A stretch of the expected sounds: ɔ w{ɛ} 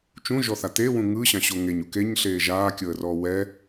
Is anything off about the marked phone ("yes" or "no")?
no